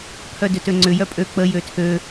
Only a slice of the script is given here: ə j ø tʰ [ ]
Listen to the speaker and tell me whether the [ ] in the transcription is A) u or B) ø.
B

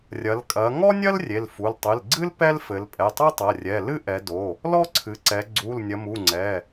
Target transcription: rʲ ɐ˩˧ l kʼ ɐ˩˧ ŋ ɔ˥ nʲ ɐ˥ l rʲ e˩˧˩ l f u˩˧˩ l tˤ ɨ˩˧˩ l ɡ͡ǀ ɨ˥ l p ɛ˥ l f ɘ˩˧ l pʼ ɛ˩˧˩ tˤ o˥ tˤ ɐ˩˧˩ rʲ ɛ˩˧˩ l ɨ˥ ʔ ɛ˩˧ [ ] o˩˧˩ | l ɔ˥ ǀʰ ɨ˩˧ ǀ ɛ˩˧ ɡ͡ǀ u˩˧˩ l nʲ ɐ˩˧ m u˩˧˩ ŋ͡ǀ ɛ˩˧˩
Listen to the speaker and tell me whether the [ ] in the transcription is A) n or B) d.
B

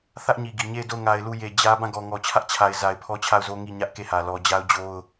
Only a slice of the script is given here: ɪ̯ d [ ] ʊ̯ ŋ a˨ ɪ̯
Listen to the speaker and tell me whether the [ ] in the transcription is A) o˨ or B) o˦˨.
B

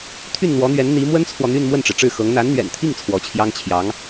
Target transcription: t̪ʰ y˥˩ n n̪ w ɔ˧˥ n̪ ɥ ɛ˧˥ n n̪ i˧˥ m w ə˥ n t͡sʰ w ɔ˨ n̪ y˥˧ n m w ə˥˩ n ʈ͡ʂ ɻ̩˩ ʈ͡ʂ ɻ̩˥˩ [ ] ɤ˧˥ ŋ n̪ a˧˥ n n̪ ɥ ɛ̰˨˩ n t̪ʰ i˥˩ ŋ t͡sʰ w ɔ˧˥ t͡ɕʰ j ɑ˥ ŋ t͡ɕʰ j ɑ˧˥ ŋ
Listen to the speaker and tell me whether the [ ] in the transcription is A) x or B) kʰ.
A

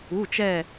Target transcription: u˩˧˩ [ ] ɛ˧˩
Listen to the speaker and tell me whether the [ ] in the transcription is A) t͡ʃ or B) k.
A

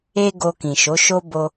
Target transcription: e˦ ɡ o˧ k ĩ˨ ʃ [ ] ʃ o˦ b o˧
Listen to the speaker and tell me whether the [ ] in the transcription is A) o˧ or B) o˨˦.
B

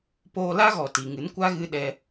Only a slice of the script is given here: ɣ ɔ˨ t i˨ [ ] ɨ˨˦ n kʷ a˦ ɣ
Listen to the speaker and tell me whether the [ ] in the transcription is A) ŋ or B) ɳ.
A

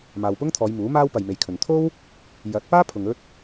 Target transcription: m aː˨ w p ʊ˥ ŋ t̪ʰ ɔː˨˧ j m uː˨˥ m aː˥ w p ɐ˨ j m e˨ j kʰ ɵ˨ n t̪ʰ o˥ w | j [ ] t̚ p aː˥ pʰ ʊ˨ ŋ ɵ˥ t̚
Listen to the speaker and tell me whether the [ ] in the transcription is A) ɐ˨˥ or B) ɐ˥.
A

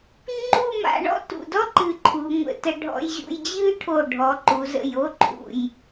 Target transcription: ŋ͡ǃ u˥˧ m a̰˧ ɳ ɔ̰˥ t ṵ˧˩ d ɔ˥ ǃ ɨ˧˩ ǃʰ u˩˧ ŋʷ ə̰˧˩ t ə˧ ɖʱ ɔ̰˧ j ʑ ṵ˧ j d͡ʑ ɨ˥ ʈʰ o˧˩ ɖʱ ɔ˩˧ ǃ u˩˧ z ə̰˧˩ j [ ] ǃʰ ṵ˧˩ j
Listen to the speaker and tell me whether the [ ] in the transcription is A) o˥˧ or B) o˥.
A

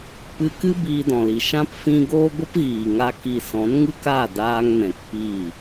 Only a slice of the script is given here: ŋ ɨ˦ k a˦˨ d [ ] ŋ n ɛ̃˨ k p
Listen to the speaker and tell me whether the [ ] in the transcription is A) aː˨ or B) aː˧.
B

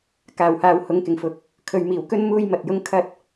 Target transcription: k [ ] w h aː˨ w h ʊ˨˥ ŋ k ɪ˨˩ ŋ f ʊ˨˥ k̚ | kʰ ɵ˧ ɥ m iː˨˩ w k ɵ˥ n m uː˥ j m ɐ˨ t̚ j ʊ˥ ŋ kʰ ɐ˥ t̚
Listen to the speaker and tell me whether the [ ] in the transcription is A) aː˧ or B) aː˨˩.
B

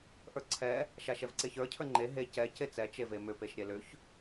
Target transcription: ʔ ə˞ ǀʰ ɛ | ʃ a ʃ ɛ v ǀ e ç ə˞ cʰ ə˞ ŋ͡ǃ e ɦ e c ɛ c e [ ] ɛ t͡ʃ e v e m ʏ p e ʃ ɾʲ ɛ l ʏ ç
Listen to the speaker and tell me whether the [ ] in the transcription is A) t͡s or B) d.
A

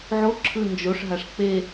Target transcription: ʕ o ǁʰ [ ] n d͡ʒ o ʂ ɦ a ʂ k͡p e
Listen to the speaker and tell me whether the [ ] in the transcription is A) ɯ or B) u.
A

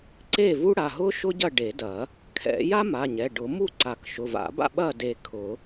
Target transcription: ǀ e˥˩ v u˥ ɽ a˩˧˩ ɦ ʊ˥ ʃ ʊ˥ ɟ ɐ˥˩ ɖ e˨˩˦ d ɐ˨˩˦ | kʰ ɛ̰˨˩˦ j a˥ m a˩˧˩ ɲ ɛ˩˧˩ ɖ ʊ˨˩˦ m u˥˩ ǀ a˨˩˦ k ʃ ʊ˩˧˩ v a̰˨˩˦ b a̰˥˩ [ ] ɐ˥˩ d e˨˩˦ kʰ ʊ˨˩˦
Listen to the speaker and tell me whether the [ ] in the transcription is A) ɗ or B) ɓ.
B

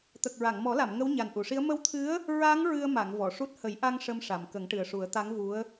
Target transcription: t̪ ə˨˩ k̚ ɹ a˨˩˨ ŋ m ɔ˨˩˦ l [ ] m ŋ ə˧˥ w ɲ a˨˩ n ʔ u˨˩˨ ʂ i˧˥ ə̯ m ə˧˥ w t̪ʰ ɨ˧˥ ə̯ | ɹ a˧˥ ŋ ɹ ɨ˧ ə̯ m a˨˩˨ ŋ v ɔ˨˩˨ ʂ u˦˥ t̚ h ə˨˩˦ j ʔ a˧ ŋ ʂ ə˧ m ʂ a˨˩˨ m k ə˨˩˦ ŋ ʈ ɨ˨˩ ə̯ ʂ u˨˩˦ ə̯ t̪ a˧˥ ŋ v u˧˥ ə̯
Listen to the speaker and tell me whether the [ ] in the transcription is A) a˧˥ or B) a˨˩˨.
B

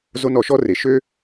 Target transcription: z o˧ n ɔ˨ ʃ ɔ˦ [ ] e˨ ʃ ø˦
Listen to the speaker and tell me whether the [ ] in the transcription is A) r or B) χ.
A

